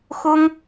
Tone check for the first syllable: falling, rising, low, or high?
high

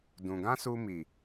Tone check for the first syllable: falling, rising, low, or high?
low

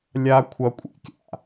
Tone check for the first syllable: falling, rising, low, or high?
high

